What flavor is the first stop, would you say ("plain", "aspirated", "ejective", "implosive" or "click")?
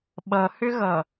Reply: implosive